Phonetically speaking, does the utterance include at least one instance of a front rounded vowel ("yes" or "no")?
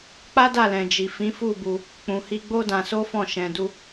no